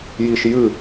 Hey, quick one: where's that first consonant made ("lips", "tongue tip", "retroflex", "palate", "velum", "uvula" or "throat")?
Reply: palate